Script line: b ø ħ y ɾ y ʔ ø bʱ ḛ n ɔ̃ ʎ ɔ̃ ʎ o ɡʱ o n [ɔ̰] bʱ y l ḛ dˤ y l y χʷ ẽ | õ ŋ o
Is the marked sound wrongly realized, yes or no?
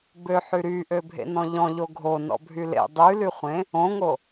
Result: no